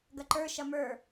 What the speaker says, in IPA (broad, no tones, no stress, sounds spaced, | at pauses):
ɡ ɐ ǃ ə˞ ʃ ɐ m ə˞